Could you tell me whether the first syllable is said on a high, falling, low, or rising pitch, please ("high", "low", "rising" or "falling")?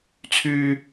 high